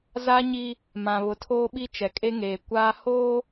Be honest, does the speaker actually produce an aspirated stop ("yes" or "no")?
yes